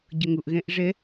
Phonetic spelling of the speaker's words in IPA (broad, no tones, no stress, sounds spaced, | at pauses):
ɟ ə ŋ ʊ ʔ ɣ ɛ̃ ʔ ʐ ɛ